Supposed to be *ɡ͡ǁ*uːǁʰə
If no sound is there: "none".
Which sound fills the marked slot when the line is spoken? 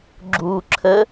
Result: ɡ͡ǁ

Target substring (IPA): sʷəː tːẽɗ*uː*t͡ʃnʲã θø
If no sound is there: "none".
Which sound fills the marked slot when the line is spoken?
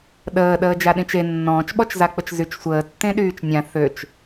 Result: yː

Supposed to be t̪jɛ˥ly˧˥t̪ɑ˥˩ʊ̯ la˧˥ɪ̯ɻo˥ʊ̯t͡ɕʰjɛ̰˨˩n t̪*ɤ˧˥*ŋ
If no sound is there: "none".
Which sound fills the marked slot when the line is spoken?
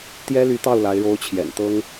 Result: ɤ˥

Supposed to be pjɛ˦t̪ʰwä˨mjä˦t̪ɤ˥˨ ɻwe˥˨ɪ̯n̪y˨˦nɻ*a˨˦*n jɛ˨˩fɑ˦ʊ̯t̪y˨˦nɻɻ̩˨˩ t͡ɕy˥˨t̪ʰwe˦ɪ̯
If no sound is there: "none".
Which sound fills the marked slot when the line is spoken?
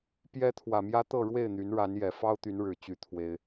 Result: a˨˦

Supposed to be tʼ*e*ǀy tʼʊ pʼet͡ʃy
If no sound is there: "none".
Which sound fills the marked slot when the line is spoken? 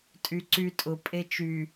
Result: y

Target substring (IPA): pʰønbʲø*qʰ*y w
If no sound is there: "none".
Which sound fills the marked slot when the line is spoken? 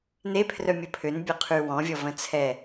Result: qʰ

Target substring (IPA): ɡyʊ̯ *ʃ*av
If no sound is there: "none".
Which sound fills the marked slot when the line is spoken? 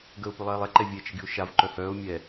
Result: ʃ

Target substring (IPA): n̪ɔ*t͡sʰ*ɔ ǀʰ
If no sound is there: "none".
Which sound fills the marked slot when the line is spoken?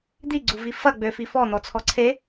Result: t͡sʰ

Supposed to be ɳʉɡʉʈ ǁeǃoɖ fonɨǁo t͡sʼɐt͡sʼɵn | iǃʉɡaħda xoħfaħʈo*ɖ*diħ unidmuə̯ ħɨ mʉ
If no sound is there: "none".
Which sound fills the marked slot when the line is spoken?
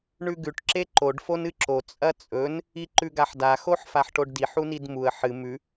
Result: ɖ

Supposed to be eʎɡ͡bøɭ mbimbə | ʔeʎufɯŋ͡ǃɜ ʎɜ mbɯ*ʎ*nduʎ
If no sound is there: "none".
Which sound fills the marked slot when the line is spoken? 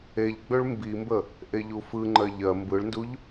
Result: ɭ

